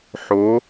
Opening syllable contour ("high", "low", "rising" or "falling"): rising